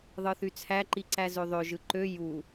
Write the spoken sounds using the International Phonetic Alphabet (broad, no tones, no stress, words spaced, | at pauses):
ðˤɯθyt͡sʰæ ǃiǀæzøðˤø ʒɯǃø ju